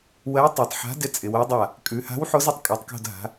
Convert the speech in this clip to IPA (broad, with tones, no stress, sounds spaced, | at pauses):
w ɜ˨˥ tˤ a˩˧ tˤ ħ a̤˨˥ d ɪ˨˥ t͡sʼ ɪ˩˧ w o˨˥ dˤ a˦˨ | kʼ ʉ˩˧ h a̤˨˥ w ħ o˨˥ z ɪ˦˨ tˤ kʼ ɛ˩˧ tˤ k o̤˦˨ d ɦ a̤˩˧